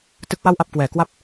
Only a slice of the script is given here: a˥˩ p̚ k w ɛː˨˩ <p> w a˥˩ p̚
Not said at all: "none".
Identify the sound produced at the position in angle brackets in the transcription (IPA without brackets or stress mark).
k